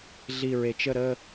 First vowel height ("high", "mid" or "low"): high